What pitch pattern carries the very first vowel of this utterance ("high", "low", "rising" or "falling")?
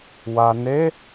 low